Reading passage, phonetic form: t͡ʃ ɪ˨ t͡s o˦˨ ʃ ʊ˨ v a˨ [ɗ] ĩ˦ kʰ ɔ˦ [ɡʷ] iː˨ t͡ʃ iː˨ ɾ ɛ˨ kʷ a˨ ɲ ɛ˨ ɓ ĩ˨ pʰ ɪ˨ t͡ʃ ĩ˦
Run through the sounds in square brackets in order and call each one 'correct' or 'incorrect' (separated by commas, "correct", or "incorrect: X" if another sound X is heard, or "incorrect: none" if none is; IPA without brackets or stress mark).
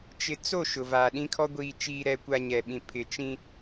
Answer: correct, correct